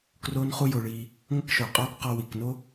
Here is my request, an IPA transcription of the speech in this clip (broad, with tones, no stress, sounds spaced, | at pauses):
k r oː˦ n χ u˦ j o˧ ɭ iː˧ | ŋʷ ə˦ k ʃ o˨ qʼ ɔː˦ k q ɔ˧ w i˨ k n o˦